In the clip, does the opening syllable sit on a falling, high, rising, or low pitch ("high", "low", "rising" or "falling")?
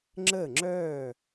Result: falling